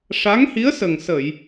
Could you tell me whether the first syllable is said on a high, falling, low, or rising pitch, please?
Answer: rising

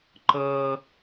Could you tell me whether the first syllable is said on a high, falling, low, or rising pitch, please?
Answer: high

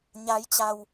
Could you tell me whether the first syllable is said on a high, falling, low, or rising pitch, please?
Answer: rising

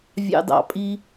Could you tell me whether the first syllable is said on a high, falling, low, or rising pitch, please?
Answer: high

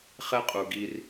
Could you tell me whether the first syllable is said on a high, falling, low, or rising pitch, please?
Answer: high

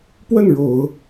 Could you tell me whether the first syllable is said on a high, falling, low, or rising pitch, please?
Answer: falling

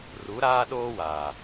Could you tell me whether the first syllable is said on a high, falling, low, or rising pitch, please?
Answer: rising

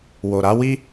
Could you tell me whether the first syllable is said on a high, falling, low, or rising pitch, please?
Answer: low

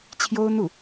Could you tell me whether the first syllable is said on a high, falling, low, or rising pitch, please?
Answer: high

